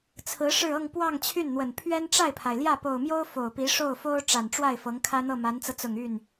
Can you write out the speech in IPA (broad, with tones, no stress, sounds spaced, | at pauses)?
t͡sʰ ɹ̩˧˥ ʂ ɻ̩˥˧ ɤ˥˧ ŋ p w ɑ˥˧ ŋ t͡ɕʰ y˥˩ n n̪ w ə˨˩ n pʰ ɥ ɛ˥ n ʈ͡ʂ a˥˩ ɪ̯ pʰ a˩ ɪ̯ l j ä˥˩ p o˨˩ ʊ̯ m j o˥ ʊ̯ f o˨˩ ʊ̯ p i˧˥ ʂ o˥˩ ʊ̯ f o˥ ʊ̯ ʈ͡ʂ a˨˩ n ʈ͡ʂ w a˥˩ ɪ̯ f ɤ˧˥ ŋ kʰ ä˥ n̪ ɤ˥˩ m a˧˥ n t͡s ɤ˧ t͡s ʊ˨˩ ŋ y˥˩ n